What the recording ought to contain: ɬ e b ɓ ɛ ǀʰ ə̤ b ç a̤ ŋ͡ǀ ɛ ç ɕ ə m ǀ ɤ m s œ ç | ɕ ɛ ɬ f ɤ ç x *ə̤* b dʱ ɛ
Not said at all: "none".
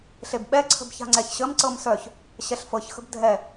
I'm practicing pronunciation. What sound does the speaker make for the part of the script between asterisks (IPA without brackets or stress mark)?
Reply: ə̤